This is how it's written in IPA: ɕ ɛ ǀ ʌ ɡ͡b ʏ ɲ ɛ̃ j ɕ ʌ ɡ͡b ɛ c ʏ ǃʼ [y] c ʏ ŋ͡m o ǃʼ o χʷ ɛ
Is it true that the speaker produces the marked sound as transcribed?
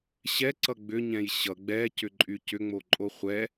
yes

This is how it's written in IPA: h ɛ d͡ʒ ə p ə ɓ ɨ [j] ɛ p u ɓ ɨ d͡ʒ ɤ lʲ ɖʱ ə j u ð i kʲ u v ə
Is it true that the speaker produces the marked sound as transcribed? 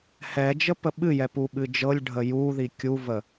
yes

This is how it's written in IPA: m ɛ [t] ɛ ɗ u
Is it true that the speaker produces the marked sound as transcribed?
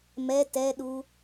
yes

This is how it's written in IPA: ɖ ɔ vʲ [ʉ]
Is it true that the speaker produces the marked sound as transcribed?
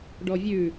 yes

